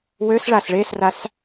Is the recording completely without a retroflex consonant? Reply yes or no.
no